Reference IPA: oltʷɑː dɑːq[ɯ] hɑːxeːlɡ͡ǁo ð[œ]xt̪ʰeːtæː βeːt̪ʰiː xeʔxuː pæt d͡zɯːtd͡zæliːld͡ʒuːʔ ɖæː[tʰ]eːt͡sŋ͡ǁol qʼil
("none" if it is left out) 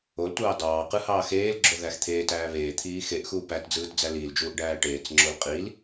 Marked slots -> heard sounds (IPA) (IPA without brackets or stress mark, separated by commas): ɯ, æ, ʈ